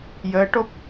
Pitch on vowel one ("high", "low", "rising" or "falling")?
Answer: rising